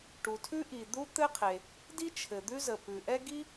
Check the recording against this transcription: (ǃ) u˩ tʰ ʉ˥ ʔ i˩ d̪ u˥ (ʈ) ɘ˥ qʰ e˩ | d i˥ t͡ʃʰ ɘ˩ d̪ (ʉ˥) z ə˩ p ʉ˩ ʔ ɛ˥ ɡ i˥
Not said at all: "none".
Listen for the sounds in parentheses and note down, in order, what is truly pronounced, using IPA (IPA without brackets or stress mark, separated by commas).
ʈ, t̪, ʉ˥